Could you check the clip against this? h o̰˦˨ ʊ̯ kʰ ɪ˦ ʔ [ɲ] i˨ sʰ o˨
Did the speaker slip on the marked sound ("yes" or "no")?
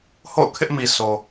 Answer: yes